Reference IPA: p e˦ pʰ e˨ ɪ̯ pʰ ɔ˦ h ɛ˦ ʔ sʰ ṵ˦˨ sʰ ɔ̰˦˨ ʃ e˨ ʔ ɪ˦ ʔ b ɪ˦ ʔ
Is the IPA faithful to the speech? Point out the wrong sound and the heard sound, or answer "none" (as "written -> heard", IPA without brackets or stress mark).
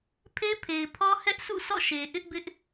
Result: p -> pʰ